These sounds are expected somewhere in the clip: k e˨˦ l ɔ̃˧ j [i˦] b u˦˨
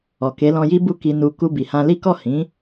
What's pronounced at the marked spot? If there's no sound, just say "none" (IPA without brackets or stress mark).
i˦